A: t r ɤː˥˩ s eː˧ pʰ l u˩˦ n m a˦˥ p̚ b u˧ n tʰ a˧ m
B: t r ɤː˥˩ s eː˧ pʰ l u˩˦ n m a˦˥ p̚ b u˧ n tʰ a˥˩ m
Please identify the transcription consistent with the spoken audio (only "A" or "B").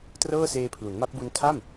B